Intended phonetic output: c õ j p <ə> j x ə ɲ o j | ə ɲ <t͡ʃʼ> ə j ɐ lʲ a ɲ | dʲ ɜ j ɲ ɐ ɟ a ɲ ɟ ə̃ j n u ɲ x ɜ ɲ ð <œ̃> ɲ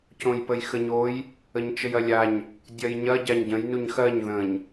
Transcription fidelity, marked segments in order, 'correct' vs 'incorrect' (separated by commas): correct, incorrect, incorrect